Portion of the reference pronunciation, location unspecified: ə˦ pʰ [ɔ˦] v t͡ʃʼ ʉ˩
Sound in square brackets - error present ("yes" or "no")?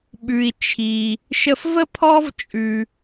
no